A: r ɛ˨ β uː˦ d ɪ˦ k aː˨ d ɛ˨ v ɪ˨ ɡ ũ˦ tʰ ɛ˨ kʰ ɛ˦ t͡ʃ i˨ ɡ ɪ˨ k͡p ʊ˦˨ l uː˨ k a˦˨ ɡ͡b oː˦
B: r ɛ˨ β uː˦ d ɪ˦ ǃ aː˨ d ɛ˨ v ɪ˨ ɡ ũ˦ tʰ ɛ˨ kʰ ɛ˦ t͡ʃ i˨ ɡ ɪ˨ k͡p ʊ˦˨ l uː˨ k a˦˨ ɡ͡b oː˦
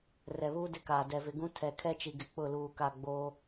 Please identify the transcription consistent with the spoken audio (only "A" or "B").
A